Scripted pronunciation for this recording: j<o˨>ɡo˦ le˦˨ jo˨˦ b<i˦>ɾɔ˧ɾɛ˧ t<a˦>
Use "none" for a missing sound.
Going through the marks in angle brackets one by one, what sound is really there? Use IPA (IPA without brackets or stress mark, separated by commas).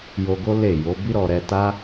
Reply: o˧, i˦, a˦